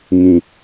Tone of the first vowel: low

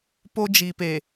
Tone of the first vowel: high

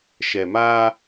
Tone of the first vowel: low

